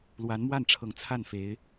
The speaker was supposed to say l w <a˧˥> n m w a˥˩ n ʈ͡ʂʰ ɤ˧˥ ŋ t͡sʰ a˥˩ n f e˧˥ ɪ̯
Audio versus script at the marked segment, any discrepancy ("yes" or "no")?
no